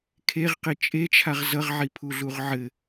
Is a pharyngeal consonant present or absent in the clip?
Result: present